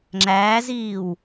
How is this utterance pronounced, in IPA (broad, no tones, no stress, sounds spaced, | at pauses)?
ŋ͡ǁ æː z iː w